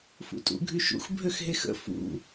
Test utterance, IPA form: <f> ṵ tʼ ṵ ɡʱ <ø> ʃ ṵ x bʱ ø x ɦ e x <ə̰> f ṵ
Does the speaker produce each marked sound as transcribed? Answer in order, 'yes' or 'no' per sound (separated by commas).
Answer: yes, no, yes